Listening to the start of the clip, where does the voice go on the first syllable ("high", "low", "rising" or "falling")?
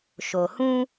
low